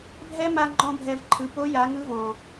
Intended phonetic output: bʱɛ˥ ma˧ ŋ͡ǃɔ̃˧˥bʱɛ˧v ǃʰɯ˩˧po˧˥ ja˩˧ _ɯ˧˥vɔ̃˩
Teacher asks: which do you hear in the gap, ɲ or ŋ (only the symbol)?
ŋ